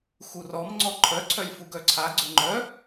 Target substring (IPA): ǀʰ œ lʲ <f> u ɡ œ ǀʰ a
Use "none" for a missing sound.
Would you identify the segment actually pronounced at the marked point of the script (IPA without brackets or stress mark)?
f